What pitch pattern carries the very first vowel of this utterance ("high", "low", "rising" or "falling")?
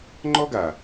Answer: high